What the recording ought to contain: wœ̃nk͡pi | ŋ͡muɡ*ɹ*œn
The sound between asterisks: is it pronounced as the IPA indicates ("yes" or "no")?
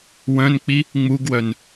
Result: no